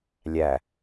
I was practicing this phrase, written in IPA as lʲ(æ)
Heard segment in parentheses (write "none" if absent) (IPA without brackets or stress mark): æ